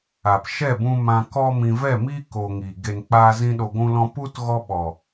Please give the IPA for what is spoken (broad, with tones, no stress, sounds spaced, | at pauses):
a˨ p ʃ ɛ˦˨ b ũ˧ m ã˧ k ɔ˦ m ĩ˧ v ɛ˦˨ m iː˦ k o˧ ŋ i˨ ɡ e˨ n k͡p aː˧ z ĩ˧ ɗ o˧ ɡʷ ũ˦ l ɔ̃˦ p u˦ t ɣ ɔ˦ ɓ ɔ˨